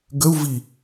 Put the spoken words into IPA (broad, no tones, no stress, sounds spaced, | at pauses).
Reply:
ɡ ə u̯ v i